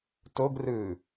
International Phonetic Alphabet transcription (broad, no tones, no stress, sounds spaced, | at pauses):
t o ɡ r ɯ